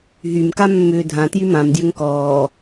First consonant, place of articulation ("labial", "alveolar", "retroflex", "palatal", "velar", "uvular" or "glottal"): glottal